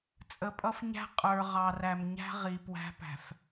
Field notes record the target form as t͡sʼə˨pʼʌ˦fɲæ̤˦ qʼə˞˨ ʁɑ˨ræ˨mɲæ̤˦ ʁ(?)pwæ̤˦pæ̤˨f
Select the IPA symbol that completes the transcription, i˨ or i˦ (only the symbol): i˨